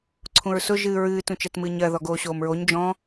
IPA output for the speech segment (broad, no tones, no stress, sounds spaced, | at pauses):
ǀʰ ũ ɹ s ʊ ʒ ɨ ɹ ɨː t ũ t͡ʃ ɜ t m ɨː ɲ ɜ ð ɔ ɡ oː ɕ oː m ɹ o ɲ d͡ʒ ɔ̃